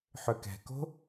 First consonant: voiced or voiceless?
voiceless